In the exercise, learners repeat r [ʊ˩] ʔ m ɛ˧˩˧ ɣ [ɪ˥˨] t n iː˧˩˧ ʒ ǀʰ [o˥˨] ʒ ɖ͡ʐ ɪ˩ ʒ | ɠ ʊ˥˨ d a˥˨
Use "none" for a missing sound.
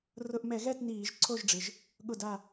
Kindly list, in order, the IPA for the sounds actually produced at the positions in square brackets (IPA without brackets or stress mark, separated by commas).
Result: ʊ˧˩˧, ɛ˥˨, o˥˨